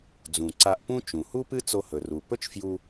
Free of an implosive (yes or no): yes